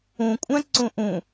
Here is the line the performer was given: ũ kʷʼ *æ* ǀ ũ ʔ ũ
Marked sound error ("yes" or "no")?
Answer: yes